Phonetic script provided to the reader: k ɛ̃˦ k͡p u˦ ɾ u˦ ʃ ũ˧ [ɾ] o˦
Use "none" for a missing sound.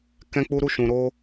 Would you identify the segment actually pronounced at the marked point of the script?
ɾ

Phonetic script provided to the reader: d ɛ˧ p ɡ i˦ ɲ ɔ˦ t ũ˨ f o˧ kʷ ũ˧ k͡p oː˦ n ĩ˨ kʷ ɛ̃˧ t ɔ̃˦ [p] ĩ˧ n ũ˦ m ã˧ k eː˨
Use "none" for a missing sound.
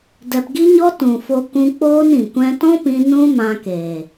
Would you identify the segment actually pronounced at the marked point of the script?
p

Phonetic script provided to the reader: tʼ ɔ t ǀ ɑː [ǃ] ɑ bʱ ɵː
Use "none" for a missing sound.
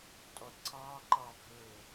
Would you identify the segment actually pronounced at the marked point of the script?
ǃ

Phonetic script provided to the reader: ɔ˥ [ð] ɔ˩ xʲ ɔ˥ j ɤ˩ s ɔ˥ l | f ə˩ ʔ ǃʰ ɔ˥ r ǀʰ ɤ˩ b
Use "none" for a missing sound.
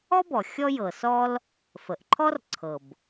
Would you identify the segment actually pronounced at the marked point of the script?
b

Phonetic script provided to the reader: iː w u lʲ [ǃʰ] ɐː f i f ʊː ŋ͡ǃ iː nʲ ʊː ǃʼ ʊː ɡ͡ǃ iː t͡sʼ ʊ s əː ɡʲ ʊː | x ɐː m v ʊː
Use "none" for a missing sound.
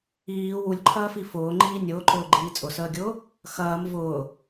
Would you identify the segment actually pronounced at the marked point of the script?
ǃʰ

